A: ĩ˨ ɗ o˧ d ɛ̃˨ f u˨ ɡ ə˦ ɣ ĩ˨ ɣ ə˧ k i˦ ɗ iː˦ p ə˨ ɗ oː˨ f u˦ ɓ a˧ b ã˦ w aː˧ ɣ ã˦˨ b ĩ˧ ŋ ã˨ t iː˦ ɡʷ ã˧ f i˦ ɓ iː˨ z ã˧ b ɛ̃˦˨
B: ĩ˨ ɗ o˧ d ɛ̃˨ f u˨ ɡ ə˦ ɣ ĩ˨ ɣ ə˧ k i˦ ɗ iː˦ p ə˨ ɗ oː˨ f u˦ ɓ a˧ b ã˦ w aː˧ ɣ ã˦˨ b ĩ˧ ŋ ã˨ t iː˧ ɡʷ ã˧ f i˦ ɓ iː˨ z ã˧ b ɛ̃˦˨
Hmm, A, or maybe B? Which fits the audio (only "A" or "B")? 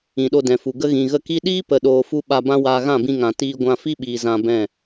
B